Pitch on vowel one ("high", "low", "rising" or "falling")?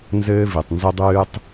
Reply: high